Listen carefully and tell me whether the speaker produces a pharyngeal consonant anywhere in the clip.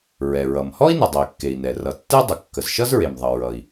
no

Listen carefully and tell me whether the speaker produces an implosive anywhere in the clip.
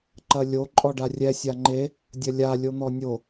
no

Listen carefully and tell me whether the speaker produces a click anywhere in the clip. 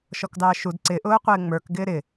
yes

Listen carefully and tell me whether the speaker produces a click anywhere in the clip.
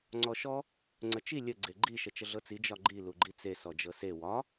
yes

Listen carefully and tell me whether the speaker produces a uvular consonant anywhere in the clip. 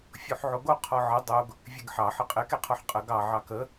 yes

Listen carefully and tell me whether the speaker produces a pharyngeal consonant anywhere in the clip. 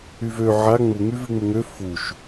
yes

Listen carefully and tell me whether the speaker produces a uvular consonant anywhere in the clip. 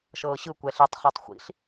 yes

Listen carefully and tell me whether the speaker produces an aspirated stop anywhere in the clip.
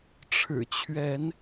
yes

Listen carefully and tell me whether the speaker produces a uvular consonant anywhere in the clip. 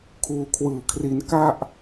no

